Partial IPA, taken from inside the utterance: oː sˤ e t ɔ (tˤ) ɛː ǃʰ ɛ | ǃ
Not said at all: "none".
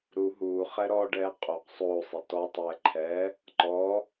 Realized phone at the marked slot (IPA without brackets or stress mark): tˤ